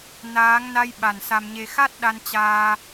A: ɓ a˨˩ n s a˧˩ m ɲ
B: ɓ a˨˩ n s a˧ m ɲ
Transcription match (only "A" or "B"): B